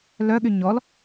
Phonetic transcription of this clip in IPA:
lœɠy ɲɔl

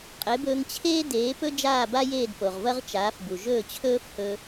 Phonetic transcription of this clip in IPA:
qʼe˩˥bɵː˧ŋ t͡ɕʰeː˥ deː˩˥pɵ˥ d͡ʒaː˥˩ba˥jeː˥˩d po˩ʁvɐ˥ʁ t͡ʃaː˩˥fbu˩ ʒɵː˥˩t͡ɕʰɵː˥fhɵ˧

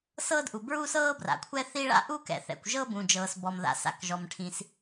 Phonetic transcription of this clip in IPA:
sɤː˥dʔu˩bɹu˥sɤː˥ bra̰˩kʷʰɛ˥θi˥ ɭa̰˥ʔu˥kɛ̰˩θɛ̰˩kʷ ʒɤ˥bũ˩d͡ʒɤː˩sbɔ˩m ða̰˩ sa̰˩kʒɔ˩mʈʰĩ˩s

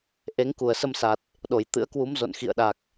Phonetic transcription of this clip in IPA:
ʔe˨˦ŋku˧˩ə̯sə˧msa˨˩t̚ | ɗo˧˩jt̪ɨ̰˧˥ə̯kwu˨˦m zo̰˧˨nxḭ˧˨ə̯ɗa˨˩k̚

